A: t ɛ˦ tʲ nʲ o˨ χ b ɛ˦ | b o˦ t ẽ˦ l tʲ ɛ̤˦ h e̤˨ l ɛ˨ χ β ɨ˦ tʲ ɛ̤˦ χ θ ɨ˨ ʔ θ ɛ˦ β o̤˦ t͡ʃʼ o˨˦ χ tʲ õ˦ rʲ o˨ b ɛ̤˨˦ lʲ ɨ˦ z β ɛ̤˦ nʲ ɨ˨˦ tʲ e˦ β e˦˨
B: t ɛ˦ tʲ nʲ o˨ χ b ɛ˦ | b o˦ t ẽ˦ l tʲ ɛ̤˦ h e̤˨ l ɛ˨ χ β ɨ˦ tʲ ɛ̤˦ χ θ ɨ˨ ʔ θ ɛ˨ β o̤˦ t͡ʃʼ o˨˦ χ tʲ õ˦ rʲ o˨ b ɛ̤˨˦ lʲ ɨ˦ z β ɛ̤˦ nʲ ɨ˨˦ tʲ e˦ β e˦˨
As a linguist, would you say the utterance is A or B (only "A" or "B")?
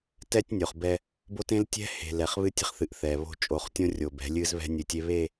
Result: B